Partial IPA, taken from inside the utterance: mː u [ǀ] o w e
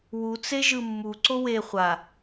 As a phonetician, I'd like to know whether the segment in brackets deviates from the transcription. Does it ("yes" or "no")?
no